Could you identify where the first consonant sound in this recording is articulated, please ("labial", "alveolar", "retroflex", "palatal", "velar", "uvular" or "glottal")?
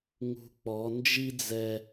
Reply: velar